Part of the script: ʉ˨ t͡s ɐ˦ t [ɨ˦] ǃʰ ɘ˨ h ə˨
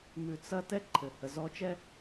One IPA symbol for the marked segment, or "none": ɛ˦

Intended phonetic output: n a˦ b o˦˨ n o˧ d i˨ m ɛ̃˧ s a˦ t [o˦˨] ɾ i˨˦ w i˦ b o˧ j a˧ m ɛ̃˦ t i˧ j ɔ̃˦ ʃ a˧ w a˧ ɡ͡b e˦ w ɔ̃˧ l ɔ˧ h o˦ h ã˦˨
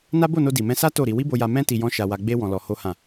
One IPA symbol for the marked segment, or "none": o˦˨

